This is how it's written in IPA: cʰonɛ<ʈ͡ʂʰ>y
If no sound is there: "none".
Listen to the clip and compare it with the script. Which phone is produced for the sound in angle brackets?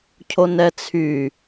t͡sʰ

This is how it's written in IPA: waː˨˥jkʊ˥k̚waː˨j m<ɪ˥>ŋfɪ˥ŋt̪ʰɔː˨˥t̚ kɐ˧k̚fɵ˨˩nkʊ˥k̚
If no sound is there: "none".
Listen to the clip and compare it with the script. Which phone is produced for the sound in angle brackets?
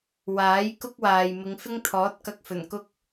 ɪ˨˧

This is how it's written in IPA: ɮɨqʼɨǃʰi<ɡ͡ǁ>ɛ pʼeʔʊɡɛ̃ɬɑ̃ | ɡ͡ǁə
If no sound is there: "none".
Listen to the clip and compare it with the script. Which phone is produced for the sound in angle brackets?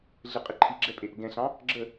ɡ͡ǁ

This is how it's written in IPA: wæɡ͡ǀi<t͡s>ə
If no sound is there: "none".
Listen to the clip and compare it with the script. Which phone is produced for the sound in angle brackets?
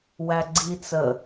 t͡s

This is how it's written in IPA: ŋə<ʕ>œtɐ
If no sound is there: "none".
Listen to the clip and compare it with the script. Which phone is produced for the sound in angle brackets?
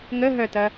ɦ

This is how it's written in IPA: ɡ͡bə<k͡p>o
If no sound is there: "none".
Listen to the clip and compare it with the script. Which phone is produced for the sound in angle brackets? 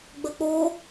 k͡p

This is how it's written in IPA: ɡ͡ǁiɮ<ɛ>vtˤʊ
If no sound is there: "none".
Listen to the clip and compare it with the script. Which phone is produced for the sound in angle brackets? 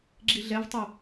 ɛ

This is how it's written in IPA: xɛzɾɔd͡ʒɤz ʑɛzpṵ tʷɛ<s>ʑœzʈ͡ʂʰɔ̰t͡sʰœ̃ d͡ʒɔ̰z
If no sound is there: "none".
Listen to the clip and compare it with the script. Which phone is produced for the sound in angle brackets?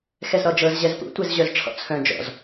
z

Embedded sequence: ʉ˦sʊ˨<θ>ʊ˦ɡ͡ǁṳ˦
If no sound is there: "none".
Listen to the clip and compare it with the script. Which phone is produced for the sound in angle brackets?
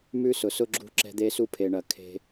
s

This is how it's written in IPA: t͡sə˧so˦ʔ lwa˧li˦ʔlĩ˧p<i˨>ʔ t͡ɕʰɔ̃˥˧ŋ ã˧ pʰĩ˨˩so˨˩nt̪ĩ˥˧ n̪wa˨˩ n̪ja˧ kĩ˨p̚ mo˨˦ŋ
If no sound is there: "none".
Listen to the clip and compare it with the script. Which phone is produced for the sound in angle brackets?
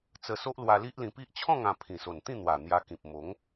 i˦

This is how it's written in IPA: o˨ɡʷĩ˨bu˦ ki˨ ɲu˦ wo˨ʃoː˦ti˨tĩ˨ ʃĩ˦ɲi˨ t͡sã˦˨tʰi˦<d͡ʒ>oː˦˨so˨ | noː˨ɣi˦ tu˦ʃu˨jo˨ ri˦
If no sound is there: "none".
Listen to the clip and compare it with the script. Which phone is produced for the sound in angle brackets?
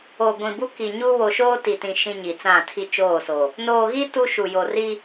t͡ʃ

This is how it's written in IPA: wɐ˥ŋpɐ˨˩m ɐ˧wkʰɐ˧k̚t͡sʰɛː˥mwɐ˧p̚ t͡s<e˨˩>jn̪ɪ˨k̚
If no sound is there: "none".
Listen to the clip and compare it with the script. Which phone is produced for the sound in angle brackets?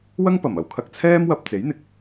e˨˥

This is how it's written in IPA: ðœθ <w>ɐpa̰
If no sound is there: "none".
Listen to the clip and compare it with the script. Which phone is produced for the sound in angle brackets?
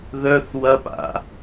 w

